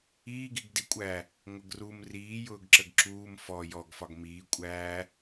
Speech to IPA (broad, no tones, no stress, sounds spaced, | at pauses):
iː ɡ i ɡ d i kʷʼ æ | ŋʷ ə ɡ r u m r iː j ʊː ɡ ǁ ə ɡ ǁ uː m f ɔ j ɔ ɡ f ɒ ɡ m iː kʷʼ æː